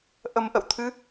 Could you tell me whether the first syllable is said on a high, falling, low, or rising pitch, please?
low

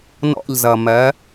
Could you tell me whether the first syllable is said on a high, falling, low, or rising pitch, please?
falling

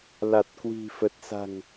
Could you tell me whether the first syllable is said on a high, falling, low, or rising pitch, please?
low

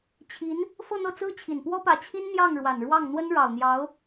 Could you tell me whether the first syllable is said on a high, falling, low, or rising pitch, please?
rising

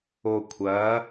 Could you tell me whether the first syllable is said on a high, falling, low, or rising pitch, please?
low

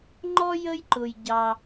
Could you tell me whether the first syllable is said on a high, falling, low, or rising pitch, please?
high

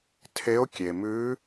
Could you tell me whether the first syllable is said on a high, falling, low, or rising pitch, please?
rising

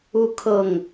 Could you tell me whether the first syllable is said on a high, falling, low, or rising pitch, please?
falling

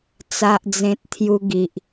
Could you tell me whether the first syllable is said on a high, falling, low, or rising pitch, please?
low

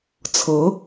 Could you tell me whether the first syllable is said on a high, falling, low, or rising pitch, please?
rising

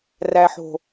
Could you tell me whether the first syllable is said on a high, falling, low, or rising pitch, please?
low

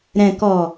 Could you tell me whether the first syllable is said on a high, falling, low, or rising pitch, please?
low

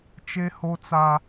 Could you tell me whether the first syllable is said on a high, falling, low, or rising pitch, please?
high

